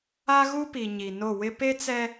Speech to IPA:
a˦ɣu˦pi˨ ɲi˨no˦˨wɪ˦ pe˦t͡sɛ˦

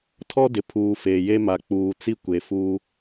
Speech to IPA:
tʰɔ˦dɪ˨pʰuː˨ feː˨je˦ma˨ k͡puː˨t͡si˦kʷe˨fuː˦

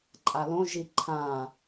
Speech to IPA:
ǃʼalõʒi ǃʰã

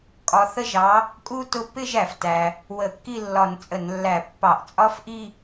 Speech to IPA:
kʼɒ˨˥θə˥ʒɑ˨˥ | kʼu˥ tʊ˥ pɪ˥˧ʒ æ˩ftæ˩ | wə˧˩˧kːi˥˧lːɒ˧˩˧n t͡sʼə˧˩˧nlːæ˧˩˧ pːɑ˧˩˧ʔt͡sʼɒ˥fʔi˥˧

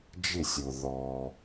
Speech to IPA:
d͡ʒɪ˦˨sʲʊ˨ ðɔ˧

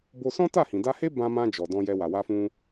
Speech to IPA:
bo˧sɔ̃˦ta˦˨hĩ˨ da˧he˦ bã˧mã˧ d͡ʒɔ˨dɔ̃˧jɛ˧wa˨ wa˧fũ˧

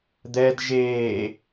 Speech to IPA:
d̪ɛd ʒeː

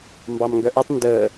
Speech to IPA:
mbɑmŋɡœʔətˤ ndəː

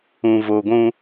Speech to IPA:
ũ˨vo˨ɡʷũ˦

